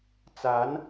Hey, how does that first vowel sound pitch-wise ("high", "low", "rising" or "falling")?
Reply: rising